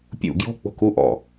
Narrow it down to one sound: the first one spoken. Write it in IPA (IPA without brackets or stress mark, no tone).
pʲ